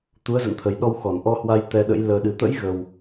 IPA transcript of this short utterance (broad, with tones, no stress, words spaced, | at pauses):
t̪u˨˦ə̯zə̰˧˨nt̪ʰə˨˩jɗɔ˧w xɔ˧˩n ʔɔ˧hwa˧j t̪ɛ˧ɗə̰˧˥j ləː˧ɗɨ˧ t̪ə̰˧˥jɣə˨˩w